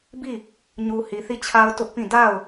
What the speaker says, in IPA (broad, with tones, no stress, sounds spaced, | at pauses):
b i˦˨ | ɲ u˨ h i˨ θ i˦˨ t͡ɕʰ a˦ ʊ̯ t ʊ˦ ʔ p ĩ˦˨ d a˦˨ ʊ̯